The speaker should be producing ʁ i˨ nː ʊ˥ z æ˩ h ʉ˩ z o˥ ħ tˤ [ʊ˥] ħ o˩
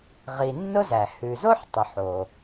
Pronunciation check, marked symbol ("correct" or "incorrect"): incorrect